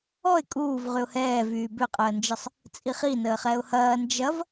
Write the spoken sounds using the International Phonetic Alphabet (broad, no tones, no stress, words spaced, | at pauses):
ɔɪ̯ kʼuːv ʁyʊ̯hɛːvyː bʏqʼəːnd͡ʒəsˤ | t͡sʼiχi nəːχɛʊ̯hɐː nd͡ʒɐv